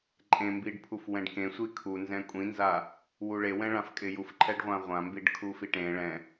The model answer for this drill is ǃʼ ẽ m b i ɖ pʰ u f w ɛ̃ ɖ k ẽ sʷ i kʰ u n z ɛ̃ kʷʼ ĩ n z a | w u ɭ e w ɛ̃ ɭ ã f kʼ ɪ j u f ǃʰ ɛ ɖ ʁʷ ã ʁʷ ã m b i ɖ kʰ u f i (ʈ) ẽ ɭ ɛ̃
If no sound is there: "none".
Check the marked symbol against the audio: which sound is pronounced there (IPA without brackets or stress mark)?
ʈ